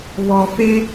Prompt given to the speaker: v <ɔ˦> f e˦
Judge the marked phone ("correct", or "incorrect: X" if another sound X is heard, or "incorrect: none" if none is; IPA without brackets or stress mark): incorrect: ɔ˨